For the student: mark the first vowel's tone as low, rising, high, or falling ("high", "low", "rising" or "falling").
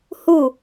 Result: falling